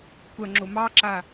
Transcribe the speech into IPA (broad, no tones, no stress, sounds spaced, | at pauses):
kʷ ɐ ŋ͡ǁ o m ɑ ǁ a